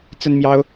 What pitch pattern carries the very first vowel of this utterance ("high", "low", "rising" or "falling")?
high